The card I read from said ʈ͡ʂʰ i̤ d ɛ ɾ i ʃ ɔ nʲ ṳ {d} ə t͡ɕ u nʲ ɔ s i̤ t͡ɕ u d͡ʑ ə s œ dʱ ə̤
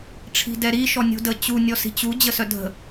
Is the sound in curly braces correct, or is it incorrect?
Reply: correct